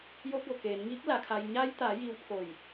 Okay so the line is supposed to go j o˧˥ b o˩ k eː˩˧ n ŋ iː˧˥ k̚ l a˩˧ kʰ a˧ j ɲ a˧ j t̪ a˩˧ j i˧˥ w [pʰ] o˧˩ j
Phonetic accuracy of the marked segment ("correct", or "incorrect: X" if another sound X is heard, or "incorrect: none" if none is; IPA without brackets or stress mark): correct